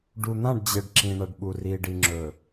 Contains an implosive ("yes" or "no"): yes